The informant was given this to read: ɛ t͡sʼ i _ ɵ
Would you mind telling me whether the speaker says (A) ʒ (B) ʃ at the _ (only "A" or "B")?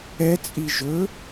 A